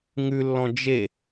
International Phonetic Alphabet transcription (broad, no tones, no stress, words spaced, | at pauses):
ŋʉlːɔ̃ d͡ʒe